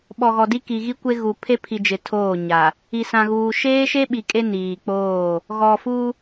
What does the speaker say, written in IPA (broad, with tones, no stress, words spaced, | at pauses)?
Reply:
ɓɔ˨ɣɔ˨di˦ ki˨ɣi˦kʷe˦ɣu˨ pʰe˦pʰi˨d͡ʒɪ˨ tʰoː˦˨ɲa˨ | i˨sã˨ɣuː˨ ʃeː˦ʃe˦ɓi˨ kʼe˦niː˨k͡poː˦˨ | ɣɔ˨ fu˦